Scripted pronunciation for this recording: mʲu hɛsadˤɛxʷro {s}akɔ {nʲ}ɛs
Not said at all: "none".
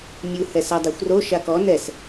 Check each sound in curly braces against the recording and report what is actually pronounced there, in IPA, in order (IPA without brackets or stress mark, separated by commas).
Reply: ʃ, n